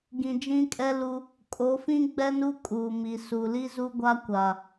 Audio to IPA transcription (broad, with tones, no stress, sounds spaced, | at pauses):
ɡ ĩ˨ d͡ʒ ĩ˦ kʼ ɛ˦ l u˦ | kʼ o˨˦ f ĩ˦ ɡ͡b ɛ˦ n u˦ kʼ uː˨ m i˨ s u˨ l i˦ z u˦ ɡʷ a˦ kʷ a˨